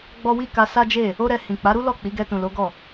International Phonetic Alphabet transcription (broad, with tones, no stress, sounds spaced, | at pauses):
ɡ͡b ɔ˦ w i˦ k a˧ s a˦ d͡ʒ e˦˨ | o˦ ɾ ɛ˧ h ĩ˨ k͡p a˨˦ ɾ u˦ l ɔ˦˨ k͡p i˨˦ ɡ ɛ˧ t ũ˨ l o˨˦ ɡ ɔ˦˨